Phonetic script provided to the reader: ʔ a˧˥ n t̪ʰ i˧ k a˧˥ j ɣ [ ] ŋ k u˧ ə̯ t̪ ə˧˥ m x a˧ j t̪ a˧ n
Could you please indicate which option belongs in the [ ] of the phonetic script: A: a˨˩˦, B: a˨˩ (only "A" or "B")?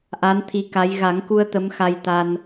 A